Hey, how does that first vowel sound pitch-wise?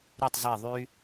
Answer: falling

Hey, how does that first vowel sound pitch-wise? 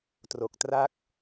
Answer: low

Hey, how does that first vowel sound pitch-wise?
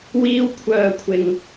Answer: high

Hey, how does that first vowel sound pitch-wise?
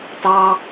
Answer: high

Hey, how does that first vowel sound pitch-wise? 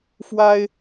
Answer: high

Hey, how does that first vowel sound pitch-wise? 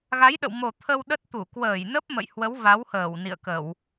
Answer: rising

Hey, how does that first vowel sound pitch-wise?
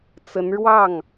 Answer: rising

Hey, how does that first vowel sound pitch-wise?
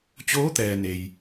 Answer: rising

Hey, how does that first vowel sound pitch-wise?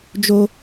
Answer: high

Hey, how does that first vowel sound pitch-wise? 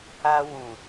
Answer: high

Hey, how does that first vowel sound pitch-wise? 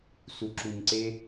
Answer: low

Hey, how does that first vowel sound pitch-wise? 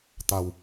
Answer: low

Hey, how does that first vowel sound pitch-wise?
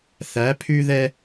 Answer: rising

